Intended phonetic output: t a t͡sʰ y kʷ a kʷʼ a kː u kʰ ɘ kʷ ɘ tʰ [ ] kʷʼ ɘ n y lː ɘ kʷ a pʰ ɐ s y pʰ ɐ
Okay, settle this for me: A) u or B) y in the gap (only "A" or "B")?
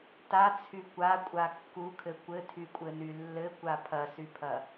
B